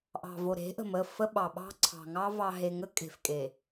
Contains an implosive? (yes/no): yes